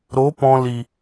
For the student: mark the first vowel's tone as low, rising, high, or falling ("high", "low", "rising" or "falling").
rising